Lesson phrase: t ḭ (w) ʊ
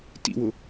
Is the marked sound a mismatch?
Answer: no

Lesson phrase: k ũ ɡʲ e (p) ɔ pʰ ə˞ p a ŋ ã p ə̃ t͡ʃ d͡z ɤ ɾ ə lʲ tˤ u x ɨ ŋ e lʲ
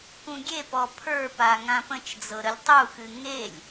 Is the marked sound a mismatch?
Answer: no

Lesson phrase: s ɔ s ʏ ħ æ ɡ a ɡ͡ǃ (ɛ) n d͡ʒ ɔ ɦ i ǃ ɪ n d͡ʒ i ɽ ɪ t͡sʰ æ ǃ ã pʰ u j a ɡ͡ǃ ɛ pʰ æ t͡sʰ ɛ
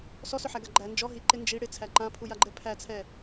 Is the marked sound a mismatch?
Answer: yes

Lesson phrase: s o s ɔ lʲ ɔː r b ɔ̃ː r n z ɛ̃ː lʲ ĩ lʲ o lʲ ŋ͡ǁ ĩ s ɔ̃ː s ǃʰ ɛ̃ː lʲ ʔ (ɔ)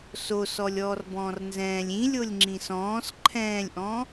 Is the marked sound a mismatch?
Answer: yes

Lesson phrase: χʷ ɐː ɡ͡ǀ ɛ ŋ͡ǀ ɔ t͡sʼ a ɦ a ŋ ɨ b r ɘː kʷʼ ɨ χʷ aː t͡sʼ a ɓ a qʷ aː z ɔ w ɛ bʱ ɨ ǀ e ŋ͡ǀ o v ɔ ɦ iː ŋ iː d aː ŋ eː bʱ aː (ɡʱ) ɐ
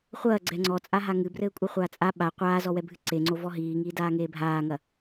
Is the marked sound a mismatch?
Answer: yes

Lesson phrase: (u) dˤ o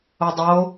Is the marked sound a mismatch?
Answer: yes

